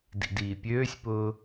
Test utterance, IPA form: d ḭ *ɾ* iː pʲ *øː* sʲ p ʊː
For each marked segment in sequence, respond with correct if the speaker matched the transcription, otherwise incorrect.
incorrect: d, correct

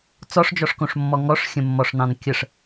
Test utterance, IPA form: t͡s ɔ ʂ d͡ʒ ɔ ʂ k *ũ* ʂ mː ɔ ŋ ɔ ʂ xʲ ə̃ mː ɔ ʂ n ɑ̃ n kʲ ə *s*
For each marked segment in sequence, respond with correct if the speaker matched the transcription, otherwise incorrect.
incorrect: õ, incorrect: ʂ

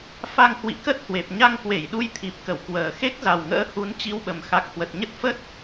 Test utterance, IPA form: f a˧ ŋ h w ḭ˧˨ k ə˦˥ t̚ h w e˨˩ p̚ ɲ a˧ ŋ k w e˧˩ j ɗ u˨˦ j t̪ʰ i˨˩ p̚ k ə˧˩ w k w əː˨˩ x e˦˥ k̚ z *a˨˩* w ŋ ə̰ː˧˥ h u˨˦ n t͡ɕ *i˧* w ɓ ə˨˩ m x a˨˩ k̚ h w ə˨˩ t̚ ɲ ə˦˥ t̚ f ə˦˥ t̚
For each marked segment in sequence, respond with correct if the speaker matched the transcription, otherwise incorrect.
correct, correct

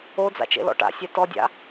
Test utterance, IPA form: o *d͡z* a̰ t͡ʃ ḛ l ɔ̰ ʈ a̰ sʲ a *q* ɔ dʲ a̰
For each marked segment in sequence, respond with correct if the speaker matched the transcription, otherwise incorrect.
correct, incorrect: t

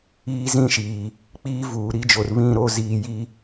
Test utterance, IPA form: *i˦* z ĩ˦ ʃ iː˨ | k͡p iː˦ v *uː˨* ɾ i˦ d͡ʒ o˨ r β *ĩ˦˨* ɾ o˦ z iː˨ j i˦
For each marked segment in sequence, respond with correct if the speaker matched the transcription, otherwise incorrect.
incorrect: iː˦, correct, correct

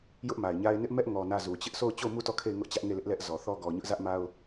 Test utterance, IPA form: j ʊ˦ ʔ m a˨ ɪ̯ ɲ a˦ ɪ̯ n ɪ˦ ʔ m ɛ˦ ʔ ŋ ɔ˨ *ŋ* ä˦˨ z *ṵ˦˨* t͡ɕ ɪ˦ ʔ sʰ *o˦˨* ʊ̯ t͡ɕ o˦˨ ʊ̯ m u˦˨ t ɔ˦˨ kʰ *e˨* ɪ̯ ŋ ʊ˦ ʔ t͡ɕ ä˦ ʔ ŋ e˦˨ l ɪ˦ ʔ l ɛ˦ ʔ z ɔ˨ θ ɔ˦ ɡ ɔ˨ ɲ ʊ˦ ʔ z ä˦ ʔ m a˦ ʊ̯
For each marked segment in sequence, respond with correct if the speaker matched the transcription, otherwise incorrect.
incorrect: n, incorrect: u˨, correct, incorrect: e˦˨

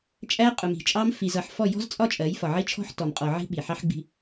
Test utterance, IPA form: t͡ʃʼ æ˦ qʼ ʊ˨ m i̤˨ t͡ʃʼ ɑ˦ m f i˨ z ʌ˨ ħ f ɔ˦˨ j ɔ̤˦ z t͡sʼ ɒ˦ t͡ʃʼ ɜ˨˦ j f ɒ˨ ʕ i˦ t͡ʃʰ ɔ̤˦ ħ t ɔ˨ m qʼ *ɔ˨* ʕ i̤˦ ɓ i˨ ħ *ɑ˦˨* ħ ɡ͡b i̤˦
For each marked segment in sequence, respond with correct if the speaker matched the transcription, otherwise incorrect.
correct, incorrect: ɑ˦

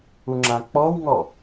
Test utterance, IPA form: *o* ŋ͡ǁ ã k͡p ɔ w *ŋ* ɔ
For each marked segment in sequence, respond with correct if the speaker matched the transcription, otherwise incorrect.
incorrect: u, correct

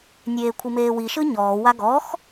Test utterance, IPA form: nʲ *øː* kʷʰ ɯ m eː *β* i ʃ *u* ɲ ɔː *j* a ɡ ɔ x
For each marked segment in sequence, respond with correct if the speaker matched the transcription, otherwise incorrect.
incorrect: eː, incorrect: w, incorrect: ɯ, incorrect: w

